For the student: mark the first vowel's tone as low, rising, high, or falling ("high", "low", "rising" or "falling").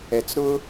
low